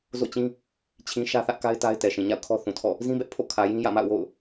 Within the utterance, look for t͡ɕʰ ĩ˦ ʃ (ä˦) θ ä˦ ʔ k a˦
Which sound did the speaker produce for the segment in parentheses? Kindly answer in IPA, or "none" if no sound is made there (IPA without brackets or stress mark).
ä˦